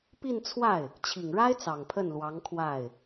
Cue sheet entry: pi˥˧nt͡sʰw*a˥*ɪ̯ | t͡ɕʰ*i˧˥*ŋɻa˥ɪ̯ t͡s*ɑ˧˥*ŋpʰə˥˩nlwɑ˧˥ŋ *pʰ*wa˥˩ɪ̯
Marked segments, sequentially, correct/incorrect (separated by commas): incorrect, incorrect, incorrect, incorrect